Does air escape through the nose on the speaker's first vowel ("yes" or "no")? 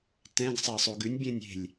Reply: yes